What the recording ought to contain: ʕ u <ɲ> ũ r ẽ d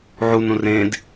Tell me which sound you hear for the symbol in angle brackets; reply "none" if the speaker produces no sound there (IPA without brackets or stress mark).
n